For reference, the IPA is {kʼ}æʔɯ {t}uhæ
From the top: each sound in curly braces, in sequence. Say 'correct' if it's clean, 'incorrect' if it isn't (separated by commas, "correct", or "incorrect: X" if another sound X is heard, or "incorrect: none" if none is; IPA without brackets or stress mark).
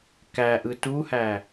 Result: incorrect: k, correct